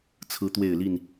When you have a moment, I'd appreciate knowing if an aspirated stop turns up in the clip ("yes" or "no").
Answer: yes